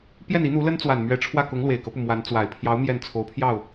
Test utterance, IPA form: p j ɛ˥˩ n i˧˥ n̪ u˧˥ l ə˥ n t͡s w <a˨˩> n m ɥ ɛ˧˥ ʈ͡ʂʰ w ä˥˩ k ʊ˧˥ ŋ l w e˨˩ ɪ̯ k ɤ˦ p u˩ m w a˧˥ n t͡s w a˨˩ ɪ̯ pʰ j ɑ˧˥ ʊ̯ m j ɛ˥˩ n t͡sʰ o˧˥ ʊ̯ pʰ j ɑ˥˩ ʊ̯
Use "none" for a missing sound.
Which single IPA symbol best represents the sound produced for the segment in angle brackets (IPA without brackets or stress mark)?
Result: a˨˩